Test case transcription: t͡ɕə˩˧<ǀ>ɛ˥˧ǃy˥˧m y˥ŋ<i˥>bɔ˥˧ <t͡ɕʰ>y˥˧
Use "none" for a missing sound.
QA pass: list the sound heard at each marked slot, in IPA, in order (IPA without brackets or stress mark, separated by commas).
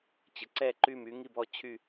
ǀ, i˥˧, t͡ɕʰ